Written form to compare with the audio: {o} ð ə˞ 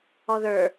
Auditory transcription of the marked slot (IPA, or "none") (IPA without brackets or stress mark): ɔ